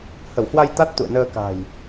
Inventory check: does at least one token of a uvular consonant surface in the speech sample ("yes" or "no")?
no